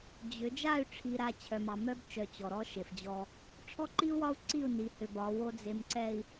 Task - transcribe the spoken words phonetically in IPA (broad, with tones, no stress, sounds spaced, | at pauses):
d͡ʑ ʏ˨˦ d͡ʒ a˦˨ y̯ ʈ͡ʂʰ i˨ ɾ a˨ t͡ɕʰ œ˨ m ɑ˨ m œ˦ b t͡ʃ œ˨ t͡ɕ ɔ˨ ɾ ɔ˦ ʃ e˨ f d͡ʑ ɔ˦ | ʈ͡ʂʰ ɔ˦ ǃ i˦ u̯ w ɒ˦ u̯ ǀ i˦˨ u̯ n i˨˦ h ʏ˨ b ɒ˨˦ w o˦ d͡z e˨ m ǀ ɛ˨ i̯